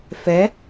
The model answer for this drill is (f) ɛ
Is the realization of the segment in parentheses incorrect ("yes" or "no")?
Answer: no